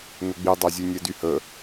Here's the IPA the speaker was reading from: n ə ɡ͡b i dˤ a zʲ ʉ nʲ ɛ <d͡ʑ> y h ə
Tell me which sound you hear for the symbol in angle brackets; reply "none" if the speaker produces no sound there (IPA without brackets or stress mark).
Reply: d